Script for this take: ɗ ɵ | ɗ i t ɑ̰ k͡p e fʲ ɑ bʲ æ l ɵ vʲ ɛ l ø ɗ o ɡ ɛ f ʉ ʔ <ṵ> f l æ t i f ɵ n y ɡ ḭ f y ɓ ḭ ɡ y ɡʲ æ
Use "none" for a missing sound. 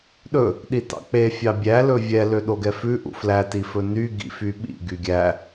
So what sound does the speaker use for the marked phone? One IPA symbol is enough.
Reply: ṵ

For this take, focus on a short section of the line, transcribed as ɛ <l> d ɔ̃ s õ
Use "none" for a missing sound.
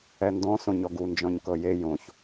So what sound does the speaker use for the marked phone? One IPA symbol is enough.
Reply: n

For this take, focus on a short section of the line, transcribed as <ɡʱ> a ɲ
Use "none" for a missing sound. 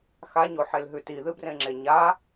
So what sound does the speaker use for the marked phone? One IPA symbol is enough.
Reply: x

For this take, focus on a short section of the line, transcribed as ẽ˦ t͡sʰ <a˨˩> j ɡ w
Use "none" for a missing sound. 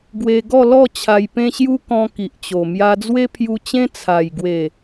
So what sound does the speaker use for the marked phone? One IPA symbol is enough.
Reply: a˨˩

